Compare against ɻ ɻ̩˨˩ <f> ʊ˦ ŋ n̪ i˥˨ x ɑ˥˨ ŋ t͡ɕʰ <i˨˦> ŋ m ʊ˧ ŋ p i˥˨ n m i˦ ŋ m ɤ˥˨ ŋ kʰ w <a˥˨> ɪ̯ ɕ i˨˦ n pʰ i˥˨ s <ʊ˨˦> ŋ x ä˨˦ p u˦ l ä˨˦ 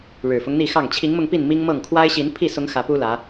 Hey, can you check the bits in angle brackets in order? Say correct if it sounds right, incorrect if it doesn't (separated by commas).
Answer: correct, correct, incorrect, correct